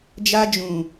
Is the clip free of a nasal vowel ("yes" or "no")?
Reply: no